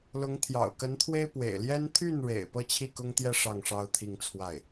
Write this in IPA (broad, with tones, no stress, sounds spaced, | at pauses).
l ʊ˧˥ ŋ t̪ʰ j ɑ̰˨˩ ʊ̯ k ə˧˥ n t̪ʰ w e˥ ɪ̯ p w ḛ˨˩ ɪ̯ l j ɛ˥ n t̪ʰ y˥˩ n ɻ ḛ˨˩ ɪ̯ p ɤ˥˧ t͡ɕʰ i˥˩ k ʊ˥ ŋ t̪ j ɛ˥˧ ʂ ɑ˥˩ ŋ ʂ ɑ˥ ʊ̯ t̪ʰ i˥˧ ŋ t͡sʰ w a˥˩ ɪ̯